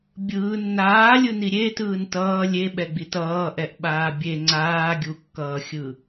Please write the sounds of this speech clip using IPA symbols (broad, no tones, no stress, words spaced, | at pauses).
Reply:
bʲɯː nːaːlʲɯni ɾʲetɯːn tʌː lʲeɓɛɡ͡bit ʌːʔɛʔɓaː bʲe ŋ͡ǀaːɡʲukːʌːxʲɯ